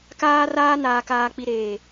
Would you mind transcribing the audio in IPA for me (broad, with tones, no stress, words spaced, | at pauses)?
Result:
kaː˦raː˦ naː˨kaː˨k͡pi˨ɾeː˨